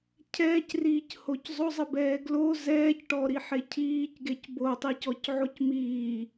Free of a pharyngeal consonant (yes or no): no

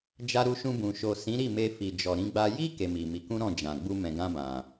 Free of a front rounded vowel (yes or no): yes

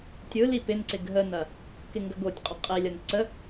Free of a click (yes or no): no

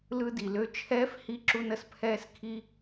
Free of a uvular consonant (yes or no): yes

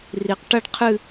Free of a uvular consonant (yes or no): no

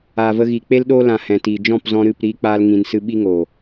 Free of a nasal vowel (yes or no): no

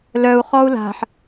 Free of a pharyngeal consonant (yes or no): no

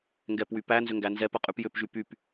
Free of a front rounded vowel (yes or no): no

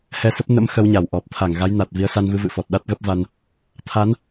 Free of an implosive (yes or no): no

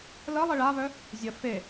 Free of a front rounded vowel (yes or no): no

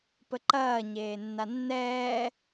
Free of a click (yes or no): no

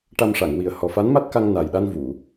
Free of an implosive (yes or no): no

